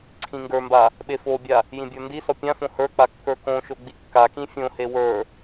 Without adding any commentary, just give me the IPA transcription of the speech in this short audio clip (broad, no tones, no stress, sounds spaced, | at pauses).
ǀʰ ĩ ŋ ɡ ə˞ m b a | ɓ e f o bʲ a | j ĩ bʲ ə˞ n d i s ɔ pʲ ã f õ h ə˞ k͡p a kː ə˞ k õ ʃ o ɡ͡b i kː a k ĩ fʲ õ h e w ə˞